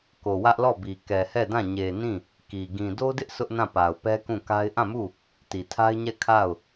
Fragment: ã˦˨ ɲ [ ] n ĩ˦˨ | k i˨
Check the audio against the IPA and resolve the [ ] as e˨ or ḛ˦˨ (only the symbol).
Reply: e˨